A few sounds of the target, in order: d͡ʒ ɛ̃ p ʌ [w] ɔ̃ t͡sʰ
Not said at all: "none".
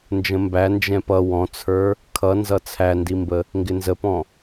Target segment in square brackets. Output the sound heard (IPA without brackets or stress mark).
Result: w